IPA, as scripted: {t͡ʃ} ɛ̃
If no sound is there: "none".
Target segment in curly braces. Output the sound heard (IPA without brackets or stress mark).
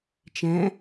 t͡ʃ